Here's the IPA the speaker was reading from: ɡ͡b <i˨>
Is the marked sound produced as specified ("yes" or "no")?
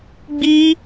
no